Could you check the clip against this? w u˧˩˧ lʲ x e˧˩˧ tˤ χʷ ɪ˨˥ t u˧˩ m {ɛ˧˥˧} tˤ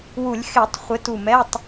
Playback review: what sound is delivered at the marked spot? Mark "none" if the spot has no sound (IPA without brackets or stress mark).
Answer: ɛ˧˥˧